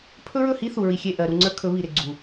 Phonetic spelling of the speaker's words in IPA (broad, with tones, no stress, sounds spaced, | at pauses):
pʰ ɵ˦ ɹ ɵ˦˨ h i˦ θ u˨ ɹ i˨ xʲ e˦˨ ʔ ɜ˨ ɾ u˨ ŋ͡ǀ ə˞˦ kʰ ɵ˨˦ β i˨ ɾ ɪ˨ ɡ͡ǀ u˨